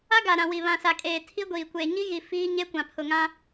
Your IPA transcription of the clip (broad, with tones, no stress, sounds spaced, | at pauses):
a˦ ɡ a˨ ɾ ã˨ w i˨ β ã˨ s a˨ kʼ eː˨ tʰ i˦ ɡʷ iː˨ kʷ eː˨ ɲ i˦ ɣ i˨ f iː˦ ɲ e˦ kʷ ã˨ pʰ ʊ˨ ŋ ã˦